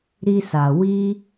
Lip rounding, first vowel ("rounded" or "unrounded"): unrounded